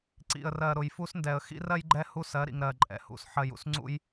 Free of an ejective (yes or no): no